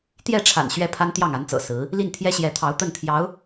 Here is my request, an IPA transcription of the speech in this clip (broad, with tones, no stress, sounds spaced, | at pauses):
t̪ j ɛ˥˩ ʈ͡ʂʰ a̰˨˩ n ɕ ɥ ɛ˥˩ pʰ a˥ n t̪ j ɑ˥˩ ŋ a˧˥ n t͡s ɤ̰˨˩ s ɹ̩˧˥ | l i˥˩ n t̪ʰ j ɛ˥ ɕ j ɛ˧˥ t̪ʰ ɑ˧˥ ʊ̯ t̪ ə˥˩ n t̪ʰ j ɑ˧˥ ʊ̯